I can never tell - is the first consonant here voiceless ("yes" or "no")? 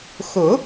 yes